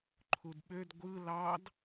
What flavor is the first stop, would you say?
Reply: click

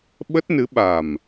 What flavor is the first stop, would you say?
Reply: implosive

